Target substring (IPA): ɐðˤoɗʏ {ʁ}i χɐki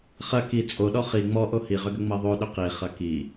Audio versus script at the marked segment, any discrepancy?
yes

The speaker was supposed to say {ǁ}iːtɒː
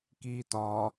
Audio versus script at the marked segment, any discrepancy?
yes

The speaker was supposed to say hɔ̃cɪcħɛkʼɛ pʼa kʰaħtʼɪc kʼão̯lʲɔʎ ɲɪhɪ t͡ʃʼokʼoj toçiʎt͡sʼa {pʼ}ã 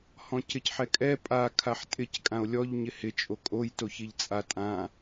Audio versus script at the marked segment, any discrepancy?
yes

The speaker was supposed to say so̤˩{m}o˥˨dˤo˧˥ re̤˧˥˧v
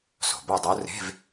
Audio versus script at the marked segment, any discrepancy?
yes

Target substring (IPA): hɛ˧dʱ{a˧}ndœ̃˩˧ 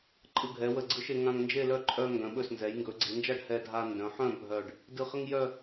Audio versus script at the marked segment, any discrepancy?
no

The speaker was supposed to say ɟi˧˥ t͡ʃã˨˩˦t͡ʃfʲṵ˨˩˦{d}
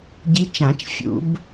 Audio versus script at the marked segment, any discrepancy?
yes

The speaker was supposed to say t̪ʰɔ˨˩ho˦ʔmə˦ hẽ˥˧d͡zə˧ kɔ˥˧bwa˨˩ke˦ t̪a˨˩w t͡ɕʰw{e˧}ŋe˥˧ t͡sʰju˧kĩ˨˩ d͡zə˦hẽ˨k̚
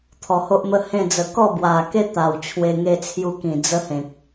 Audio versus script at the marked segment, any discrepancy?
no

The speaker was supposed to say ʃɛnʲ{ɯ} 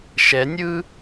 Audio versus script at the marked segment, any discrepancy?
no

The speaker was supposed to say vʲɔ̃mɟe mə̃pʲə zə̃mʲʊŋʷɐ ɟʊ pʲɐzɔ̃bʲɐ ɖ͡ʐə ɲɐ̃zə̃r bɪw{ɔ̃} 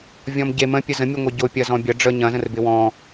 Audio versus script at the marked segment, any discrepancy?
no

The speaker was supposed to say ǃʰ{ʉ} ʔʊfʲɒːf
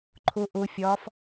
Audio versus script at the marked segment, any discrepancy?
yes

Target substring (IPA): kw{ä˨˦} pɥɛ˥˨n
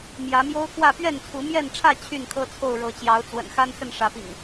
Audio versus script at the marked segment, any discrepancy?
yes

